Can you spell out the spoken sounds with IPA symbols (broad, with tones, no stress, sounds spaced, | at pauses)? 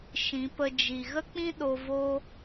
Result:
ʃ ĩ˨˦ p ə˧ d͡ʒ i˨ ɣ ə˦ k͡p ĩ˦ ɗ o˧ v o˦